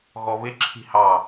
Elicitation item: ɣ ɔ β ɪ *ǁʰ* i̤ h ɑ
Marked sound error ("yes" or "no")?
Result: no